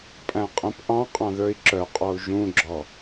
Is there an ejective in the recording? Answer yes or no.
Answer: yes